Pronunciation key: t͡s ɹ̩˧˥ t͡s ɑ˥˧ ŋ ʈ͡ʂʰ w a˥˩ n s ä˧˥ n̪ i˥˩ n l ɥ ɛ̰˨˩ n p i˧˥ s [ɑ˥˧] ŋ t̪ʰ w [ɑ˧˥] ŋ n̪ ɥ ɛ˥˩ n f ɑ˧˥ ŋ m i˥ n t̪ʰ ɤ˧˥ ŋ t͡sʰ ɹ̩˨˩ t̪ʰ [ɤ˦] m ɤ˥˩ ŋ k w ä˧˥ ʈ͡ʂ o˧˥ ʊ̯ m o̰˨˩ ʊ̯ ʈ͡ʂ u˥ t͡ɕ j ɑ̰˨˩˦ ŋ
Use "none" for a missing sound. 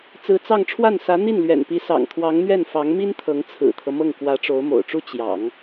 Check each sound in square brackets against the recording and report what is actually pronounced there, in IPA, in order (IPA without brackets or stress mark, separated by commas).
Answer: ɑ̰˨˩, ɑ˧˥, ɤ˦